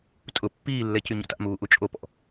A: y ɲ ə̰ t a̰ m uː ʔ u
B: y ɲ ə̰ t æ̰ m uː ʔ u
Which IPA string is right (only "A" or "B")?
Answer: A